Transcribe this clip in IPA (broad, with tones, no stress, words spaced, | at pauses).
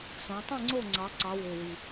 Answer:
sõ˩˧tˤĩ˥˨ŋ͡ǀo˥˨ ŋ͡ǀɑ˩˧ǀɑ˩˧ wø˨˩wi˨˩